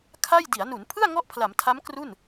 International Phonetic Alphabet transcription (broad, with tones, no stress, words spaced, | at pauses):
kʰa˥˩j di˩˦a̯nu˩˦npʰɯ˥˩a̯ ŋɔ˥˩ʔpʰla˩˦mtʰa˦˥m kru˥˩n